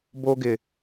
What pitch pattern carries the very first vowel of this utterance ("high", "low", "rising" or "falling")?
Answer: high